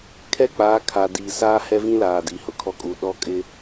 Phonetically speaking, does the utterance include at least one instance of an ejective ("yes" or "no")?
yes